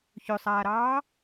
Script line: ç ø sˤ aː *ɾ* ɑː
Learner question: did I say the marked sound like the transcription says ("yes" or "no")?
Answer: yes